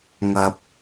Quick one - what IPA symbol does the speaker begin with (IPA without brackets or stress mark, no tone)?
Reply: ŋ